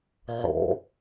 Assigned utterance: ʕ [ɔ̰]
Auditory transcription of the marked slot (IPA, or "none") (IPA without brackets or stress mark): ɔ̰